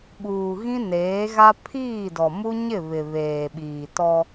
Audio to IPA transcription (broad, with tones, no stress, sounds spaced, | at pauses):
ɓ uː˨ ɣ ĩ˦ n eː˨˦ ɣ a˦ pʰ iː˦˨ d ɔ˨ m u˦ ɲ ɪ˦˨ β ɪ˨ β eː˨ ɓ iː˨ t ɔ˦